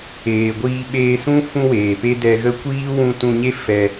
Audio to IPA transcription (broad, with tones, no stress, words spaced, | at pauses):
eː˨ɡʷiː˧ ɓeː˧sũ˦ fũ˦weː˨pe˦ dɛ˧ɣə˦ kʷiː˦wũ˧tũ˧ɲe˦ fɛ˧